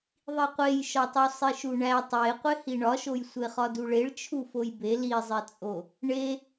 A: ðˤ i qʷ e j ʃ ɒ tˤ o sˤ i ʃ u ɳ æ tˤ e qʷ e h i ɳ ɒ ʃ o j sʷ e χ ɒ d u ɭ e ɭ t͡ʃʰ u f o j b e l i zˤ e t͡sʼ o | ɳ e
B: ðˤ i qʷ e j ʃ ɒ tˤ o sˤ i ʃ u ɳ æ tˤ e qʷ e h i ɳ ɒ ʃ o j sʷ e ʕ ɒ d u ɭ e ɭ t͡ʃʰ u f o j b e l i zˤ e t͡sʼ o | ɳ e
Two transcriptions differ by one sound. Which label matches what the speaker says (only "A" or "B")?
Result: A